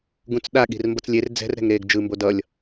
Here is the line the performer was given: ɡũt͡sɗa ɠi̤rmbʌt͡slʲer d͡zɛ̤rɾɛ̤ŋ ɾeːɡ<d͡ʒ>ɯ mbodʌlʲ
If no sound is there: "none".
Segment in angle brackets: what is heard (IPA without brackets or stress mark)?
d͡ʒ